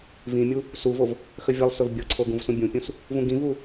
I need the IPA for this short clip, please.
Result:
v ĩ mʲ u | s u v o v | x ə vʲ ə lˠ s ɵ v bʲ ɤ ǀʰ o ɡ ũ v s ũ bʲ ũ pʲ ũ s | v ũ ɡ ĩ v u

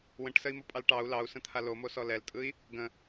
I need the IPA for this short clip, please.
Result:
w ə̃ ʈ s ə i̯ m o pʼ ɑ l ʈ ɑ u̯ l ɑ u̯ s ə̃ t̪ʰ a l o m o s ɔ l ɛ l tʼ ɯ i̯ | ɡ ə̃

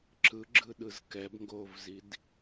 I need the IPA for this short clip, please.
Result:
ǁ ɯ ɡ͡ǁ ɯ ɗ ɯ z k ɛ b ŋ ɡ o v z i d

